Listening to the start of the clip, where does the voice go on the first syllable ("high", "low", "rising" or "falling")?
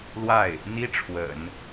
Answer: falling